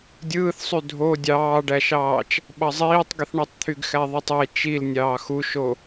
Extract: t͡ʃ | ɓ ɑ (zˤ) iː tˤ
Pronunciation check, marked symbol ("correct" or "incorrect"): correct